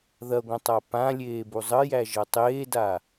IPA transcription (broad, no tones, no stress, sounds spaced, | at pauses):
ð ɐ ɡʷ ɐ̃ tˤ a p ã lʲ eː b u zˤ ə j æ ʒ ɐ tˤ eː d a